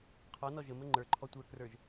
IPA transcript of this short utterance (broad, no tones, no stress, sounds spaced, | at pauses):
qʰ ɔ n ɔ ʒ ə m ə ŋ͡ǃ ə˞ ǃʰ ɔ tʷ ə˞ k r ə˞ ʒ